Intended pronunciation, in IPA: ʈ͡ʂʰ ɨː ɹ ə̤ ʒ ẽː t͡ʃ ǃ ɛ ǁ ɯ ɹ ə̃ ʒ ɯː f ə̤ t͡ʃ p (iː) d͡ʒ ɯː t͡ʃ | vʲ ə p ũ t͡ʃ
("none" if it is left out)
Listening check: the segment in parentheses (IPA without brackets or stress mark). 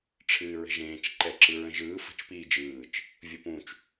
iː